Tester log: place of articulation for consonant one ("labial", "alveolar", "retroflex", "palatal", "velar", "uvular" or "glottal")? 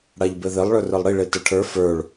retroflex